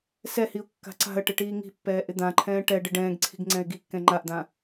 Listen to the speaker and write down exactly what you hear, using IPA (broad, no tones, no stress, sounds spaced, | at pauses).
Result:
s ɛ h i ʊ̯ kː a̤ ǀ a̤ ə̯ ʈ ɪ ʈ iː ŋ i̤ pː ɛː ʔ ɪ d̪ ã ǃʰ ɛ̃ː ʈ ɛ ɖ ɪ ɖ ɛ̃ː ɡ ǀʰ i̤ ɡ ŋ͡ǀ ɛ̃ ɪ̯ ɡ i kː ɛ̃ ŋ͡ǃ a ʔ d̪ ã